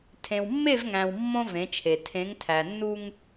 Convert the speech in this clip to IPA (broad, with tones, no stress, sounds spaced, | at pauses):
tʰ ẽ˨ w mː e˦˨ v ŋ æ̃˨ w mː õ˦ v ẽ˨˦ t͡ʃʰ e˨ tʰ ẽ˨˦ ŋ tʰ æ˨ nː u˦ ŋ